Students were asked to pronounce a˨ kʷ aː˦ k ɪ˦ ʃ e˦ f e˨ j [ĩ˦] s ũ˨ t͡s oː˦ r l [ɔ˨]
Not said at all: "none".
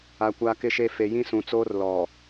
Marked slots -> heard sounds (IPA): ĩ˦, ɔ˨

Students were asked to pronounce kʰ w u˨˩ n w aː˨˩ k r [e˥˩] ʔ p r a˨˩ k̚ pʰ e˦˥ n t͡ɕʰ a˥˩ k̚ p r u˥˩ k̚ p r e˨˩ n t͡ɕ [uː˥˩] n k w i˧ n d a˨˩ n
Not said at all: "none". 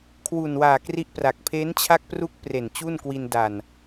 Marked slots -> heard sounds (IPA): i˥˩, u˥˩

